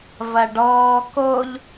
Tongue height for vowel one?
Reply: low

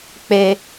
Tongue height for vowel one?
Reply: mid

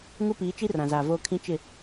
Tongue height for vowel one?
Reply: high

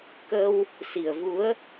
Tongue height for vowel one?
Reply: mid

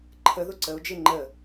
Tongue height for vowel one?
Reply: mid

